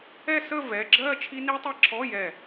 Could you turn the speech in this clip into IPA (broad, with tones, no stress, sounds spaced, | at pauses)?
ɛ˥˧ s ə˥˧ v ɛ˧˥˧ ɡ͡ǁ ɜ˥˧ t͡ʃʰ i˦˥ n i˦˥ tˤ ɛ˦˥ ǁʰ ɔ˧˥˧ j ɛ˧˩